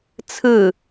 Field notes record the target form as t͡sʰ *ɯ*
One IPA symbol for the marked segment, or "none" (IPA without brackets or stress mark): ɯ